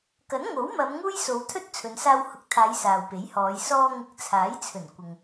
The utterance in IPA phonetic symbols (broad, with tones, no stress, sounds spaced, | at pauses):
k ɐ˨˥ n ŋ o˨˥ w m ɐ˨˧ m ŋ uː˥ j s o˨˧ w t̪ʰ ɵ˥ t̚ t͡sʰ ɵ˨˧ n s aː˧ w h ʊ˨˥ k̚ t̪ʰ aː˨˧ j s aː˨ w p e˨˥ j h ɔː˨˧ j s ɔː˧ ŋ ɪ˨˥ k̚ t͡sʰ aː˨˥ j t͡sʰ ɵ˨˩ n kʷ ɪ˨ ŋ